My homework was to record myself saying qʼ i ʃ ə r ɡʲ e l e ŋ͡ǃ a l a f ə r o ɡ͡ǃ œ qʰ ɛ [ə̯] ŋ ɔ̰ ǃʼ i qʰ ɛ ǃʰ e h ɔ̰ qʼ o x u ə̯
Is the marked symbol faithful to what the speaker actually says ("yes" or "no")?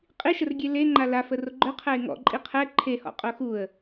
no